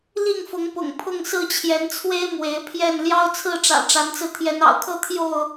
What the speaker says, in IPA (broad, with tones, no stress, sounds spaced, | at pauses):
l i˥˨ ŋ f ʊ˨˦ ŋ p ʊ̰˨˩ ŋ pʰ ʊ˥˨ ŋ s ɹ̩˥˨ t͡ɕʰ j ɛ˨˦ n t͡sʰ w e˦ ɪ̯ m w e˨˦ ɪ̯ pʰ j ɛ˥˨ n l j ɑ˦ ʊ̯ t͡sʰ ɹ̩˥˨ ʈ͡ʂ ä̰˨˩ ʈ͡ʂ a˨˦ n t͡s ɹ̩˧ t̪ʰ j ɛ˨˦ n ɑ̰˨˩ ʊ̯ kʰ ɤ˦ t̪ʰ j o˥˨ ʊ̯